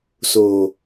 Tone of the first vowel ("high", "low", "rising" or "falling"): low